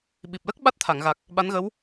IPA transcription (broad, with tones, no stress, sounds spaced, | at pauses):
ɓ i˨˩ p̚ l ə˦˥ k̚ ɓ a˦˥ t̚ t̪ʰ a˨˩˨ ŋ ɣ a˨˩ k̚ | ɓ a˧˥ n ɣ ə˧˥ w